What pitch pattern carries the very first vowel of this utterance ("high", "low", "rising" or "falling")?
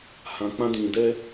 low